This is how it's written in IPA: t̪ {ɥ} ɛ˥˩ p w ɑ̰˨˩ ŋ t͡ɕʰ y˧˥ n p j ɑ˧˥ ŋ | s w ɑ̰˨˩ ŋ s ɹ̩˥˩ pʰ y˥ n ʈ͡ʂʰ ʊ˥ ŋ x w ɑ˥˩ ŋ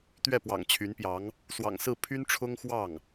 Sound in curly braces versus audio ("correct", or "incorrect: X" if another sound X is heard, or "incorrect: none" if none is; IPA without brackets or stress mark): correct